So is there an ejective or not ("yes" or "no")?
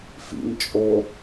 yes